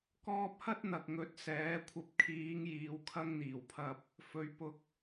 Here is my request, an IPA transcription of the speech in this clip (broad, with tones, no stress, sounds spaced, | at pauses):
k ɔː˧ p̚ h ɐ˥ t̚ n̪ ɐ˨ k̚ ŋ ɵ˨˥ t̚ s ɛː˨˥ kʷʰ ɐ˨ p̚ kʰ iː˨˧ ŋ j iː˨ w kʰ ɐ˧ ŋ n̪ iː˨˩ w pʰ ɐ˧ p̚ | f ɵ˨˧ ɥ p ʊ˧ k̚